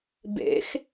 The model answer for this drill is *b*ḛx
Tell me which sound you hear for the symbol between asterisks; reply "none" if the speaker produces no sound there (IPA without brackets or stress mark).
b